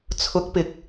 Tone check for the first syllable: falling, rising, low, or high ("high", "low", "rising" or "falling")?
rising